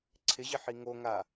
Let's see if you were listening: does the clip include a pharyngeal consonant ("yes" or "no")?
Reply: yes